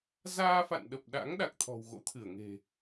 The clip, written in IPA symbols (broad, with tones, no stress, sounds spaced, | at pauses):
z aː˧ f a̰˧˨ n ɗ ə˨˩ p̚ ɗ a̰˧˥ ŋ ɗ a˨˩ k̚ t̪ʰ ɔ̤˨˩ w ɣ o̰˧˥ t̪ʰ ɨ˧˩ ə̯ ŋ e̤˨˩